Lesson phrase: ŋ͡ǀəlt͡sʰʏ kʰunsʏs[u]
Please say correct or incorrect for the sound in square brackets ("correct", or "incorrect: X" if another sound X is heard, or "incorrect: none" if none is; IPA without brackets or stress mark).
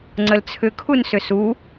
correct